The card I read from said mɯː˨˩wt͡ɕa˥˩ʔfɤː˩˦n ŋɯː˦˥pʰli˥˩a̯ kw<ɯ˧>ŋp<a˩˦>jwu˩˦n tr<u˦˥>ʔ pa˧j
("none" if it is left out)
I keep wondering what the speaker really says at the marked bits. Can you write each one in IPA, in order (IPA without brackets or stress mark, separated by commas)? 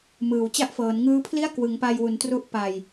ɯ˩˦, a˧, u˦˥